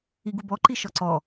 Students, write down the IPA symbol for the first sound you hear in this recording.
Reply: i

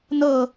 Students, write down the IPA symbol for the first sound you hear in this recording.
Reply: n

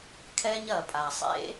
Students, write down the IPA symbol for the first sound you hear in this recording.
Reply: kʰ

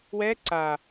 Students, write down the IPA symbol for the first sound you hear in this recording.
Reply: w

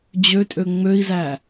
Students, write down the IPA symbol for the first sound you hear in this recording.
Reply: d͡ʑ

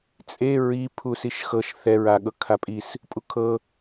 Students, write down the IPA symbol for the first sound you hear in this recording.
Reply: t͡sʼ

